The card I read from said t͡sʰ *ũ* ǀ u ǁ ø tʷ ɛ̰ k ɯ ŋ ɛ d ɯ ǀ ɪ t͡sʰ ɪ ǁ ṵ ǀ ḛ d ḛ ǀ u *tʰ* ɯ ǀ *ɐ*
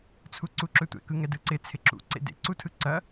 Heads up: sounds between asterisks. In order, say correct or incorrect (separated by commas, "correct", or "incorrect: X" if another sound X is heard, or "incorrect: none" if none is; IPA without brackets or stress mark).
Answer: incorrect: u, correct, correct